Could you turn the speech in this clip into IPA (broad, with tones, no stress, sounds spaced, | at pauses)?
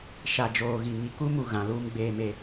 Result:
ʃ a˨ d͡ʒ oː˨ ɣ i˨ ŋ i˨ k u˦ m u˨ ɣ ã˨˦ l uː˦ m ɡ͡b eː˦ m e˦